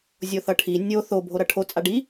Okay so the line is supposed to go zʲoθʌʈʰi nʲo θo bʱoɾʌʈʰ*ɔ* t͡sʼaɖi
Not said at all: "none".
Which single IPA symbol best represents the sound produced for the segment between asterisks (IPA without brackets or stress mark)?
o